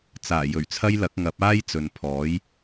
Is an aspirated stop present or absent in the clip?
present